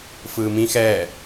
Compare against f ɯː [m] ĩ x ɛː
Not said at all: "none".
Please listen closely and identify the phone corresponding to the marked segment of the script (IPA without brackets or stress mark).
m